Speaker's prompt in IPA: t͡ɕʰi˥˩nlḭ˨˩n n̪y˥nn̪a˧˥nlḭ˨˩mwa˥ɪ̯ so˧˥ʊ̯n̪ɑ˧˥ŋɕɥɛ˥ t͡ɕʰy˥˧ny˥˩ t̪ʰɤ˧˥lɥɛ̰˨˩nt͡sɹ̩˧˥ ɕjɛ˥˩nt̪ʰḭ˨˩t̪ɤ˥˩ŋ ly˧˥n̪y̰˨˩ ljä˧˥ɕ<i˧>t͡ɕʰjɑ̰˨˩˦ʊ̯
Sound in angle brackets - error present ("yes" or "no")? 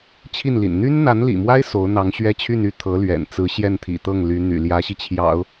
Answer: no